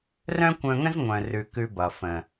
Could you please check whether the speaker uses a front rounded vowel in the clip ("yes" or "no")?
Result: yes